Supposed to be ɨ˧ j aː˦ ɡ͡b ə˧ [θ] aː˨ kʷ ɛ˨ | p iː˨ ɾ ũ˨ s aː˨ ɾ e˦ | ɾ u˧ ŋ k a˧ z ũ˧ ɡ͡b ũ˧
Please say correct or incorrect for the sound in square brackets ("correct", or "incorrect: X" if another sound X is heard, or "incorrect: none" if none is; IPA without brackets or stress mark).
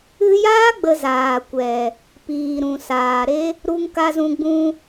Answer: incorrect: z